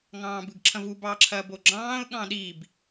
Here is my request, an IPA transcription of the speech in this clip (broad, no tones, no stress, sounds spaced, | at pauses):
ŋ ɑ̃ː b ɯ ɡ ǁʰ ɐ̃ v u b ɑ ǁʰ ɐː b o ɡ͡ǁ ɑ̃ː ʊ̯ ɠ ɑ̃ ɗ iː b